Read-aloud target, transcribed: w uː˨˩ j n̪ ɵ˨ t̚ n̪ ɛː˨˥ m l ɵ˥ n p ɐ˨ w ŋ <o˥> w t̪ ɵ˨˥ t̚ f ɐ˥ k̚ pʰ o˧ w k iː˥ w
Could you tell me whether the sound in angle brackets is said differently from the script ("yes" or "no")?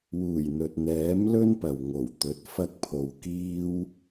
yes